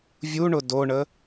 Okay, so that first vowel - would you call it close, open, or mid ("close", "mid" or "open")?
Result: close